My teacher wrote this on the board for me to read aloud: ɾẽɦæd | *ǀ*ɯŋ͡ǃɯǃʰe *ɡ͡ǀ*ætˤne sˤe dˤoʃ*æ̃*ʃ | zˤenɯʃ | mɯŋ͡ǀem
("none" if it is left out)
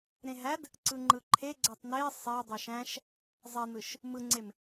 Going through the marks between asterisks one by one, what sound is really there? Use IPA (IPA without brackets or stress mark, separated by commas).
ǀ, ɡ͡ǀ, æ̃